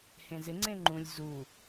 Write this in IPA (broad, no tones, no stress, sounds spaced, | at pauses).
h ẽ z ɪ ŋ͡ǀ ẽ ŋ͡ǃ ũ lʲ z u